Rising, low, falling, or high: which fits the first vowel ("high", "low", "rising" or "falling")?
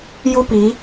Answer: high